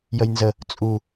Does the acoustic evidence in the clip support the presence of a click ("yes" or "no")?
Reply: no